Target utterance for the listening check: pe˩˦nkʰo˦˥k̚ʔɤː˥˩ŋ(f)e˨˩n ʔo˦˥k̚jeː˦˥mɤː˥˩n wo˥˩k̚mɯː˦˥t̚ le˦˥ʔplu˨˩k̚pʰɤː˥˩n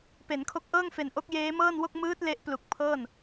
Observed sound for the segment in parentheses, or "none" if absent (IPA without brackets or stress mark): f